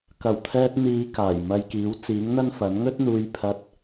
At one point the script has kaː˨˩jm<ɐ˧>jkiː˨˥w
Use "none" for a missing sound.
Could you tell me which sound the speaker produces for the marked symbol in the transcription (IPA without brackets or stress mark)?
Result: ɐ˧